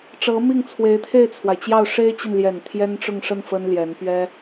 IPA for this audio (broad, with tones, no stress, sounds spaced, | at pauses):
ʈ͡ʂ ɤ˧˥ m i˥˩ ŋ t͡sʰ w e˧˥ ɪ̯ t̪ʰ e˥˩ ɪ̯ t͡sʰ w a˩ ɪ̯ t͡ɕ j ɑ˥˩ ʊ̯ ʂ e˥ ɪ̯ t͡ɕ i˨ n l j ɛ˨˩ n t̪ʰ j ɛ˥ n ʈ͡ʂ ʊ˥˧ ŋ ʂ ə˥˩ n f ə˥ n l j ɛ˧˥ n p ɥ ɛ˥